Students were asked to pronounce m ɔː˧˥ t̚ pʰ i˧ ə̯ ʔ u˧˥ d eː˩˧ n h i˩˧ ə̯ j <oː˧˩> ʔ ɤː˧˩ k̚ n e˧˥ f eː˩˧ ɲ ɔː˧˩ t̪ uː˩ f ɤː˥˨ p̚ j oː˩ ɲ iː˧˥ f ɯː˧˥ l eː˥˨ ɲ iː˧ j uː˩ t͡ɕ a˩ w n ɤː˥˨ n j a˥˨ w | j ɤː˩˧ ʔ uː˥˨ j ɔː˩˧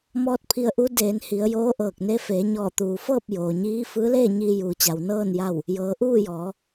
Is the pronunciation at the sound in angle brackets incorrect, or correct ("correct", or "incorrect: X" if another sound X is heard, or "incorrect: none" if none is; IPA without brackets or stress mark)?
incorrect: oː˧˥